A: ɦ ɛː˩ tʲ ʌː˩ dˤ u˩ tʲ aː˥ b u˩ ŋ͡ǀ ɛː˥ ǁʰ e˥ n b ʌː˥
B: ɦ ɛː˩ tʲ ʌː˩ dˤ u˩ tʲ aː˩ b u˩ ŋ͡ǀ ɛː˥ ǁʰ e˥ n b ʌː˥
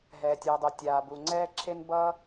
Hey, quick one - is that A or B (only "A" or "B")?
B